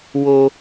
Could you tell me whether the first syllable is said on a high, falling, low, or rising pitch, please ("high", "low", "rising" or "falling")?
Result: high